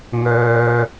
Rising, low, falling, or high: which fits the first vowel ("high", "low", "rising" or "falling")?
high